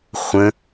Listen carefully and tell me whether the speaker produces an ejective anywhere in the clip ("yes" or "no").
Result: no